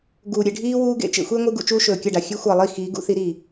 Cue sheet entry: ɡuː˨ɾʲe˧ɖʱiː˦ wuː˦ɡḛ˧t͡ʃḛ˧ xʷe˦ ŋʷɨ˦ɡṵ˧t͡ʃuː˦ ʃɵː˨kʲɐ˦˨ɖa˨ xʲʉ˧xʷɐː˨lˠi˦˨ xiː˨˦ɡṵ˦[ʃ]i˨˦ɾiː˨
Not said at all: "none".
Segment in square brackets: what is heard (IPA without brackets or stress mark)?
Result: θ